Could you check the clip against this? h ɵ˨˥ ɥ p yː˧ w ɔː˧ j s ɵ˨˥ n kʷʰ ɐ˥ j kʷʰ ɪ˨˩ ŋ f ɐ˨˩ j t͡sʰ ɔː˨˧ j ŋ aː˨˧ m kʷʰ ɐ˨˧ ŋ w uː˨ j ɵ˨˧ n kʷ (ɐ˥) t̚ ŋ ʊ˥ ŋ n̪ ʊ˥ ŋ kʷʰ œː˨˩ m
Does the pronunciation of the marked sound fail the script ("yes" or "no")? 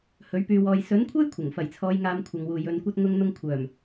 no